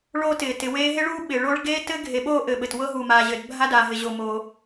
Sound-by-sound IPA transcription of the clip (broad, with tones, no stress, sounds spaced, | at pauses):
ɭ oː˧ t ɪː˩ t ɪ˩ w eː˧ ɦ e˧ ɭ uː˧ ɓ ɪː˩ ɭ oː˧ ɭ ɡ eː˧ t ɘ˧ ɡʱ e˩ ɓ oː˧ ʔ ɘ˩ ɓ ɘ˩ t w ɤ˧ ɦ u˩ m aː˩ ʑ ɘ˩ d bʱ a˧ d aː˩ ɦ ɪ˩ ʑ o˩ m o˩